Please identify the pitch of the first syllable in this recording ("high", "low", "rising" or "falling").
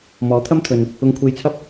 rising